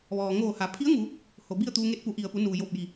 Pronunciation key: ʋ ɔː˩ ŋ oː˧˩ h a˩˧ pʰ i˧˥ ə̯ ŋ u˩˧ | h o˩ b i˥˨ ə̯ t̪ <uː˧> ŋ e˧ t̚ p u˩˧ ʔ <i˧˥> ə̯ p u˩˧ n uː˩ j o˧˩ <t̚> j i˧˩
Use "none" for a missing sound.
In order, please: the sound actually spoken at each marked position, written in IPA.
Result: uː˧, i˩, p̚

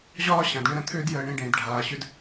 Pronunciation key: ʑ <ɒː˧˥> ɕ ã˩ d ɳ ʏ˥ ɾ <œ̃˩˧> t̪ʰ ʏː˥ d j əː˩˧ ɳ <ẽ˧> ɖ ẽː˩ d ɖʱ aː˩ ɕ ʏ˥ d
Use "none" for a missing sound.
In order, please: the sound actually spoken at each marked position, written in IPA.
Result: ɒː˥, ə̃˩˧, ẽ˧

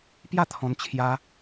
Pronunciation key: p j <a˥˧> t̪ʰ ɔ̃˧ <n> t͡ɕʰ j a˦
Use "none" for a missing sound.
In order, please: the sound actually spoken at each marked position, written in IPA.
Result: a˥˧, n

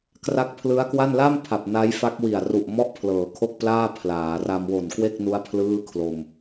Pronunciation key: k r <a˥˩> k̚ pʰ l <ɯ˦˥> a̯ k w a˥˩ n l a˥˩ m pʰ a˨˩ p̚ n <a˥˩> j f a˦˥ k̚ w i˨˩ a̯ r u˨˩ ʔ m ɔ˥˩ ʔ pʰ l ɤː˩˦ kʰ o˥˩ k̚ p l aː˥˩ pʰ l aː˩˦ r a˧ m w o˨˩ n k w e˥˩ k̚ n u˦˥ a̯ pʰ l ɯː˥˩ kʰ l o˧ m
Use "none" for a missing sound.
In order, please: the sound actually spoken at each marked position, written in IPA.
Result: a˦˥, ɯ˦˥, a˦˥

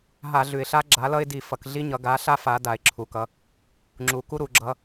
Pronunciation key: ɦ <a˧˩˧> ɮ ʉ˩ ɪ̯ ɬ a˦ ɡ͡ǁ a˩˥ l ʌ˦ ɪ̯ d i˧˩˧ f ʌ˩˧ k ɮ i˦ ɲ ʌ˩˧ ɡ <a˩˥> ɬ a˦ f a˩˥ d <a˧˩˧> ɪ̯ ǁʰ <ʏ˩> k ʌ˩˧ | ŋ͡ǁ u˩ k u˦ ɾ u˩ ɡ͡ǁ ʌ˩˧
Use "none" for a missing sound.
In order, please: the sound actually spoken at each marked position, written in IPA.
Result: a˧˩˧, a˩˥, a˩, u˩

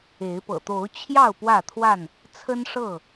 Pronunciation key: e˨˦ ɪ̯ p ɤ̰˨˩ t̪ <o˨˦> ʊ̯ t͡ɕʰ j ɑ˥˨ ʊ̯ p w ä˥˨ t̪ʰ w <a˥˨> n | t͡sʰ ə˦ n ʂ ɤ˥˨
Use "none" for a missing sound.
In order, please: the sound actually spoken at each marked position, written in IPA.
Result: o˨˦, a˥˨

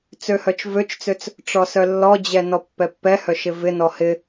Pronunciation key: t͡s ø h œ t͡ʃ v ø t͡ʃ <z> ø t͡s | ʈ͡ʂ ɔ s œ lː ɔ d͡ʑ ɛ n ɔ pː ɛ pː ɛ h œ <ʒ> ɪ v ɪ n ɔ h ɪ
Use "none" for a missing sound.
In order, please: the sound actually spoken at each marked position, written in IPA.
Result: t͡s, ʃ

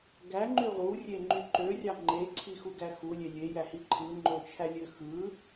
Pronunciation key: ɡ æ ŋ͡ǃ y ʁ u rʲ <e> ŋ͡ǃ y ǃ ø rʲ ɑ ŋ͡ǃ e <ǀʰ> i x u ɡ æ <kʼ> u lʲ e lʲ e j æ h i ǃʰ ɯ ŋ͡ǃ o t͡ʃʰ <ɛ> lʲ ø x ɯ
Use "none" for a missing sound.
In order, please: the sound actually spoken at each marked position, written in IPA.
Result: e, ǀʰ, x, æ

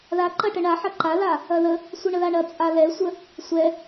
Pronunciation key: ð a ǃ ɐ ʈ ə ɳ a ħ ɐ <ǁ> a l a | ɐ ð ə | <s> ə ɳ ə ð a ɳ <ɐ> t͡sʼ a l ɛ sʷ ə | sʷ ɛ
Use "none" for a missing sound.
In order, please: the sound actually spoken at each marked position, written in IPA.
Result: ǃ, sʷ, ɐ

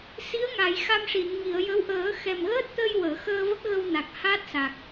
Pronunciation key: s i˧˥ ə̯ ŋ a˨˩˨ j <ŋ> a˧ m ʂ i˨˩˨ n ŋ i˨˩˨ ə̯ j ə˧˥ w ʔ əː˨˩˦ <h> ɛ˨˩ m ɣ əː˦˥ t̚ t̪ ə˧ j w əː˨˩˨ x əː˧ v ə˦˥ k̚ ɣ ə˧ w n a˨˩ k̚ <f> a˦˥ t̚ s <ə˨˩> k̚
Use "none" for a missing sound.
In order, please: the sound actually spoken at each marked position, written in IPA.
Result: x, x, h, a˨˩

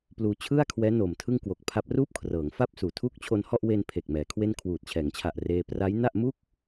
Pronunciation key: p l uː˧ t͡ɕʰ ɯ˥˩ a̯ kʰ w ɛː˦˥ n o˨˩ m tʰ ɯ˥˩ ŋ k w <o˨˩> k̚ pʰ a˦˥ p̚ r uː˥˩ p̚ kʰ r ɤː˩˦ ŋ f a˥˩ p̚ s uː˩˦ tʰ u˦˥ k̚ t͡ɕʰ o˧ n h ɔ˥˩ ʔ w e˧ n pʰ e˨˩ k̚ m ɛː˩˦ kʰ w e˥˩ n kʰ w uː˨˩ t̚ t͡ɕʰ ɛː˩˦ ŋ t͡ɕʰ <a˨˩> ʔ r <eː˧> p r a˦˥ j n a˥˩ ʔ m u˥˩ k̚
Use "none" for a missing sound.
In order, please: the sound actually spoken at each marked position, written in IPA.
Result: o˨˩, a˨˩, eː˧

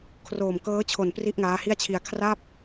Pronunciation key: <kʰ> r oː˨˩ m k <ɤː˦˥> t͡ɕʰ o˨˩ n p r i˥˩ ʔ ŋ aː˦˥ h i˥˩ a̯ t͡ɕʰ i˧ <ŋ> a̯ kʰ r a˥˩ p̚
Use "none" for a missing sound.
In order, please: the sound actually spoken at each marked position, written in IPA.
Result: kʰ, ɤː˦˥, none

